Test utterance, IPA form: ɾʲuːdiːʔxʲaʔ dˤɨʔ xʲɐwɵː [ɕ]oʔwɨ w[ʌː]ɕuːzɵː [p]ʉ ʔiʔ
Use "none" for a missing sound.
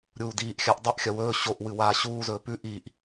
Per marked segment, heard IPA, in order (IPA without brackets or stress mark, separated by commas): ɕ, aː, p